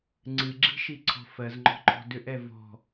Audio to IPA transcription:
ŋ͡ǀ ɨ ɡ͡ǁ i̤ ʃ i ǀʰ ɔ̤ f ɜ z ŋ͡ǃ ɔ̤ ǃ ɔ̤ d ʏ ʔ ɛ v ɔ̤

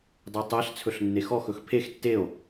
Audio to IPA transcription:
dˤ ɛ tˤ æ ɬ t͡sʰ ɵ ɬ nː e x ɔ x ɵ x pʰ e x tː e o̯

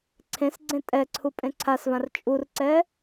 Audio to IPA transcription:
ǀʰ ẽ s ɡ͡ǀ ẽ tʼ ɛ ǀʰ u pʼ ẽ ǀʰ a s v ã r t͡ʃʼ u r ǀ ɛ

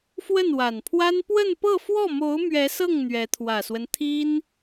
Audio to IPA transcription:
f w ə˥˩ n w a˨˩ n pʰ w a˥ n p w ə˥˧ n p ɤ˥˧ f w ɔ˥˩ m o˧˥ ʊ̯ m ɥ ɛ˧˥ s ɤ˥˩ ŋ n̪ ɥ ɛ˧˥ t̪ʰ w ä˨˩ s w ə˦ n t̪ʰ i˥ n

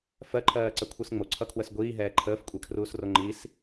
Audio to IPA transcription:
f ɜ ǃʰ ɜː ǀ ə kʷʰ ɨ s ŋ͡m o ǀʰ ʌ kʰ w ə s ɡʷ iː ɦ ɛː ǃʰ əː f kʷʼ ɛ kʰ r uː s r o ŋ͡ǃ i s

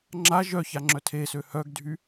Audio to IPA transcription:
ŋ͡ǁ a ʒ œ ç a ŋ͡ǁ œ tʰ e s ø h œ ɡ dʱ y

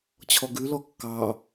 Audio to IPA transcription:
t͡ɕʰ ɔ ɡ ʉ l ɔ kː ɑ

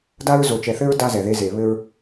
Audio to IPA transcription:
d a˦ ɹ z o˨ t͡ʃ ɛ˨ θ ɘ˦ ɹ d a˦ z ɛ˨ ð e˦ z e˨ β ɘ˦ ɹ

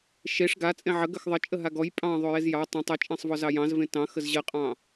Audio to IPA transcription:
ʃ e ʂ ɡ a t͡sʼ ẽ ʕ ə ɡ ə x ðˤ ə t͡ʃʼ ə ɦ a ɡ ɔ j pʼ ɑ̃ ðˤ o j e z j ɑ tˤ ẽ tˤ ə t͡ʃʼ ẽ sˤ v ɔ z ɑ j ɑ̃ z v ẽ t ɑ̃ x ə z ʑ ə qʼ ɑ̃

